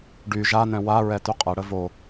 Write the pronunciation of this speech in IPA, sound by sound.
ɖ y ʒ a n ɛ̃ w a ɹ ɛ t y qʼ ɛ ɽ ə v o

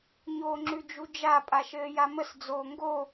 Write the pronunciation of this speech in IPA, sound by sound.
ɲ oː ŋ͡ǁ ʉ d͡ʒ u d͡ʒ a pʼ a ʃ ɘː j a m ə s d͡z oː ŋ ɡ o

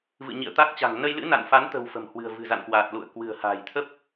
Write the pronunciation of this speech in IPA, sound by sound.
v ɨ̰˧˨ ɲ ḭ˧˨ ə̯ t̪ a˦˥ k̚ t͡ɕ a̤˨˩ ŋ n ə˧ j l ɨ̰˧˥ n a̰˧˨ n f a˨˦ n t̪ ə̤˨˩ w f ə̤˨˩ m h w ɨ̤˨˩ ə̯ v ɨ̤˨˩ z a̰˧˨ n k w aː˨˩ t̚ l ṵ˧˨ ə̯ k w ɨ̤˨˩ ə̯ h a̤ː˨˩ j t̪ʰ ə˦˥ p̚

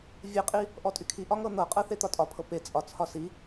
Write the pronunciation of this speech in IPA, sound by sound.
vʲ e qʼ i | ʔ ɔ tʼ y kʰ i ʔ ɒ ŋ ɤ n̪ ɤ qʼ ɤ θ e t̪ ɒ tʼ ɒ pʰ ɤ p e t͡sʼ ɒ t͡sʰ ɒ s i

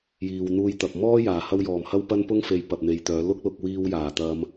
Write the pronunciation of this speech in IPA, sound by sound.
j iː˨ w n̪ uː˧ j t̪ ɐ˨ p̚ m ɔː˥ j aː˨˩ h ɐ˧ w j ɔː˨˩ m h ɐ˥ w p ɐ˥ n p ʊ˥ ŋ f e˨ j p ɐ˨ p̚ n̪ e˨ j t̪ œː˨˧ l ʊ˥ k̚ l ʊ˧ k̚ w iː˧ w j aː˨˩ t̪ ɐ˧ m

